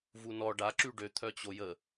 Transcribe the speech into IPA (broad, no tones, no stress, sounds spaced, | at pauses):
v u n ɔ ɖ a ǁ y ɖ ø t̪ʰ œ t͡ɕ o j ə